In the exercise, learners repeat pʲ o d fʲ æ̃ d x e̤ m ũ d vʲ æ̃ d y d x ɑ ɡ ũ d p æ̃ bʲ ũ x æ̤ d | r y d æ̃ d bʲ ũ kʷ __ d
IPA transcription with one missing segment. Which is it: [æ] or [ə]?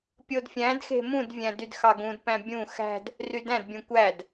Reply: æ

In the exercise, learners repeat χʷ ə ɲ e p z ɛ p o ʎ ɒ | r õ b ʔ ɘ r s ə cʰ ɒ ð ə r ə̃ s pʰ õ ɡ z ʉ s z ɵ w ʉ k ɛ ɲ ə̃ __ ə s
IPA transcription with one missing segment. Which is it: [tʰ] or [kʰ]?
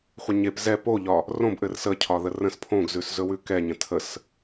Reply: tʰ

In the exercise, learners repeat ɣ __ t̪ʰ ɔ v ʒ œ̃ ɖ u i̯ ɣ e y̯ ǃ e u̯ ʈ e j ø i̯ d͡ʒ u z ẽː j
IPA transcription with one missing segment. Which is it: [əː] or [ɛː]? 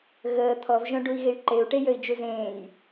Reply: əː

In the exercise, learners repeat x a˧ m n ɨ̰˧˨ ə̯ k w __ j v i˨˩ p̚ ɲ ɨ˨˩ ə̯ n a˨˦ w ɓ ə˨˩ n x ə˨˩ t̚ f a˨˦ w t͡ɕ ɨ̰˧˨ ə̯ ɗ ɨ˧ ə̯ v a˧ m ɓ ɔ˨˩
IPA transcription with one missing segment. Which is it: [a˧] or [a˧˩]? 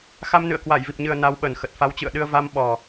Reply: a˧˩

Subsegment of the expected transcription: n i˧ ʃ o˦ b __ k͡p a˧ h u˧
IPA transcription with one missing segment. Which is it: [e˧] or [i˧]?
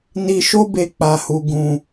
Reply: e˧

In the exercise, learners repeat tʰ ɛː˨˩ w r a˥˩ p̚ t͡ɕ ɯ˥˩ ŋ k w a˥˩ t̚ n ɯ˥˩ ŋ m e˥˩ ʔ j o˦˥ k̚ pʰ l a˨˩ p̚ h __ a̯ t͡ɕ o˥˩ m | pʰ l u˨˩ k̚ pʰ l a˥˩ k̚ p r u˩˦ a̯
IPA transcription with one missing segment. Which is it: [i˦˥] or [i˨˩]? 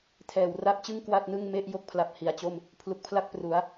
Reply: i˨˩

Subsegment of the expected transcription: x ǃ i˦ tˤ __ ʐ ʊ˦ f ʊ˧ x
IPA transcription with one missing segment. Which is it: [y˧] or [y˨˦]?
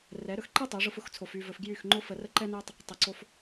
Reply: y˨˦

